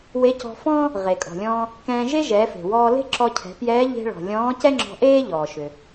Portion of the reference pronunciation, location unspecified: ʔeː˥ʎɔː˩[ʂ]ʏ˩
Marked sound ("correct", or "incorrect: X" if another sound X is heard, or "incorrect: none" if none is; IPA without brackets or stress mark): incorrect: ʃ